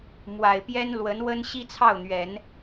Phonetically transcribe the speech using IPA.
mwa˨˩ɪ̯pjɛ˥nlwə˧˥n wə˥nɕi˥t͡sʰɑ˥˩ʊ̯n̪ɥɛ˨˩˦n

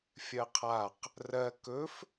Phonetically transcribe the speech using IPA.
fʲɜqʰaq | rɜ kɵf

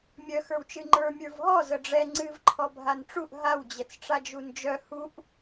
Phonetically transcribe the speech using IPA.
mʲœ xə˞wt͡ʃɨŋ͡ǃə˞ mʲə˞vɦɔ zəɖ͡ʐɛ ŋ͡ǀɨv ǃʰɔbʱanʈ͡ʂuʔ ɦaw d͡ʑɛt͡sʈ͡ʂad͡ʒund͡ʒœ huʔ

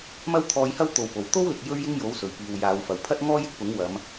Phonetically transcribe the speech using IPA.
mɐ˥wt̪ʰɔː˧jhɐ˥w t̪o˨wpo˨˩w t̪o˥wlɪ˨k̚ jɵ˥ɥjɪ˥ŋ jo˨˥wsɵ˨˩ɥpiː˨w jaː˨˧wfɐ˨wpʰɐ˥t̚ ŋɔː˥jɪ˧k̚pʊ˨˥ŋ wɐ˨˧m

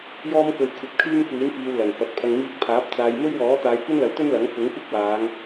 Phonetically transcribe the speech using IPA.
jɔː˥mkɵ˧ɥ kʷʰɐ˧p̚kʰyː˥mkʷiː˨˥nfiː˨w lɐ˨˩nfɐ˨˥t̚ pʰɐ˨ŋmiː˧k̚pʰaː˨˥p̚ t͡saː˨jmɵ˥ɥ wɔː˨˥t̪aː˨˧jkʷɐ˥nlɐ˨˥w t̪ɵ˥nlɐ˨˥ŋ fʊ˨˥ŋkʷɪ˥k̚waː˨˧ŋ

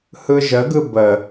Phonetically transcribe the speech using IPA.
hɯʒəɡɯ bə

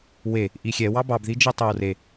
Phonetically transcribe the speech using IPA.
we | ʔixʲɛ wɑbɑbði d͡ʒitˤowre

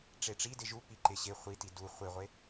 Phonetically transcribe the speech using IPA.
ʈ͡ʂeʈ͡ʂidɪ ʒu pi ǃɪ ɕɪ χʷiti du χʷɪʁʷe

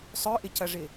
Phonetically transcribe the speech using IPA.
sˤœʔɪcɐʐɪ

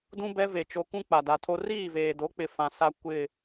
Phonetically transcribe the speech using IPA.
dũ˦bɛ˦ ve˨t͡ʃo˨kũ˦ k͡pa˨da˨tʰo˦ riː˦˨veː˨do˨˦k͡pɪ˨ fã˨ sa˦ kʷɪ˦˨

